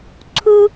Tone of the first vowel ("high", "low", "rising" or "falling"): high